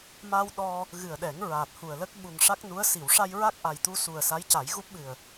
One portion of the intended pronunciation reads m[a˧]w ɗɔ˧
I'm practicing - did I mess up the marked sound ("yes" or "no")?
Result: no